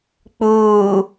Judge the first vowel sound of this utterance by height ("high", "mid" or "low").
high